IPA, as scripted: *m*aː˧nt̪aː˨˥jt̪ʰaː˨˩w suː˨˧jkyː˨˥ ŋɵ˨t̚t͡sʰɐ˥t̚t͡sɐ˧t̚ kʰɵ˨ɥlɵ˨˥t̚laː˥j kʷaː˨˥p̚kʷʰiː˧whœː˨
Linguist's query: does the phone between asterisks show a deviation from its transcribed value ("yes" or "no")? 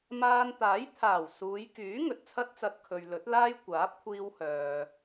no